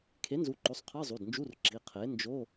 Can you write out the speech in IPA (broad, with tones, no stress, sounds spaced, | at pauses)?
kʰ e˩˥ n z u˩˥ ǃ o˩˧˩ sˤ qʰ ɯ˧˥˧ zˤ u˩˧˩ d n d͡ʒ u˧˥˧ r ǁ i˩˧˩ qʰ e˩˥ n d͡ʒ o˧˥˧